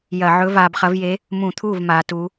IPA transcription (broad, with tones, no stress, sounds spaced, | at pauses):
j ɐ˧˩˧ ʕ ɵ˧˥ v aː˧ b χ ɐ˧˥ v j e˧˥ | m ũ˧˩˧ t̪ʰ uː˥˩ v m aː˧˥ t u˧˥